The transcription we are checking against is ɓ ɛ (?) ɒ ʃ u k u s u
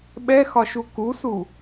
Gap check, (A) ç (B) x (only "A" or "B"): B